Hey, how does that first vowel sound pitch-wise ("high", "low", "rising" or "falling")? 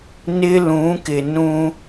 high